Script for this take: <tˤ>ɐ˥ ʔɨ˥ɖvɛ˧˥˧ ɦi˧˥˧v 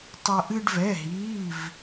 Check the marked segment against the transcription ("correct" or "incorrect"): correct